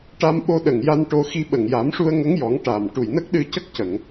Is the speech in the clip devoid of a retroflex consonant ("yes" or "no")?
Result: no